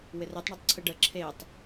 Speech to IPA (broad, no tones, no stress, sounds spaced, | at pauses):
w ɪ r e tˤ ɳ ɨ tˤ ǀʰ ɨ ɖ ə ǁʰ e tˤ